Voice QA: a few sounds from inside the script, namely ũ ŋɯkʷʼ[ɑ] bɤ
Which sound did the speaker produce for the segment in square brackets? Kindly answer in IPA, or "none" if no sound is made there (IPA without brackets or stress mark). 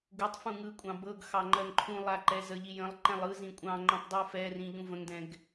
ɑ̃